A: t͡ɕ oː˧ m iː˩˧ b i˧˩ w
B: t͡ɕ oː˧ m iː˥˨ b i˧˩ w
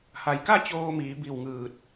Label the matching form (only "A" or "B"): A